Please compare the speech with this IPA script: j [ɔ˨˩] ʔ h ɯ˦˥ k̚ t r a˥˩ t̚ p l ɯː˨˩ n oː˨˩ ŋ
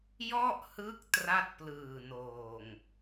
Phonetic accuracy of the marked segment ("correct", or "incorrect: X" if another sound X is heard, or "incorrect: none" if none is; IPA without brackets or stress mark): incorrect: ɔ˥˩